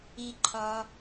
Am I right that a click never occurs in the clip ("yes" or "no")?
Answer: no